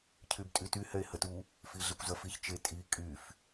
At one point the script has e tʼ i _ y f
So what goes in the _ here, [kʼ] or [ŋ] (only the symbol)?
kʼ